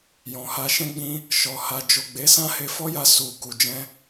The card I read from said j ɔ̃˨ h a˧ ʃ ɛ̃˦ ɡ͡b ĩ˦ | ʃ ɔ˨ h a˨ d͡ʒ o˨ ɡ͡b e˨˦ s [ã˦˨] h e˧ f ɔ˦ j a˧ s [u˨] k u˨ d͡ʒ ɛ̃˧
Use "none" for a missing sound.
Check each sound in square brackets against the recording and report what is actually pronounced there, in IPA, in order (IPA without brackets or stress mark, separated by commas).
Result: ã˦, u˨